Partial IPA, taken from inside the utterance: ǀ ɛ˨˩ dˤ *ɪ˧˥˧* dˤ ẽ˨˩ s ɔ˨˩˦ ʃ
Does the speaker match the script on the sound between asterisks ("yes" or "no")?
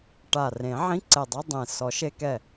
no